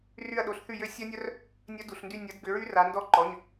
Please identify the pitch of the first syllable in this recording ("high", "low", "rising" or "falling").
falling